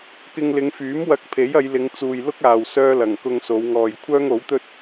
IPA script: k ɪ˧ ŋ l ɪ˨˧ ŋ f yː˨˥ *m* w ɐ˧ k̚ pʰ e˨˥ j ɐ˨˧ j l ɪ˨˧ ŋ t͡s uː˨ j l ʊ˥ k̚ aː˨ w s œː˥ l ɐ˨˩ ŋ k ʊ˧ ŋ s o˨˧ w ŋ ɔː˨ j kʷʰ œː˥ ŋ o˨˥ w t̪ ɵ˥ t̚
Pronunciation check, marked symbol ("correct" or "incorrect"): correct